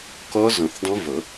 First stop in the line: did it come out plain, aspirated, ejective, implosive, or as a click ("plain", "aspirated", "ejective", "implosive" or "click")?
plain